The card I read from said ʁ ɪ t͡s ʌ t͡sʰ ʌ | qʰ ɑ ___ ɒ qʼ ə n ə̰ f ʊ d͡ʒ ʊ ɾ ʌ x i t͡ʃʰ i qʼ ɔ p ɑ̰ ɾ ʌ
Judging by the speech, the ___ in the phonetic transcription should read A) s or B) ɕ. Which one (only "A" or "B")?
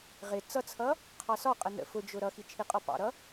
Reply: A